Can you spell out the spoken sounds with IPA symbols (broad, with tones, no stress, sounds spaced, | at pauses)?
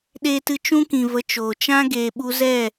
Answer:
ɗ eː˦ t ɨ˦ t͡ʃ ũ˦ k ĩ˨ v ə˧ t͡ʃ oː˨ t͡ʃ ã˦ ɡ eː˨ ɓ u˧ z ɛ˦˨